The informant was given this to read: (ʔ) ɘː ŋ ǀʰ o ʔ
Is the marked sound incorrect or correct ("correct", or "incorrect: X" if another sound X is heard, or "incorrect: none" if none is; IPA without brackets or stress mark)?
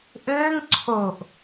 correct